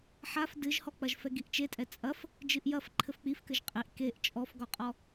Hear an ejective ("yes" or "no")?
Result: yes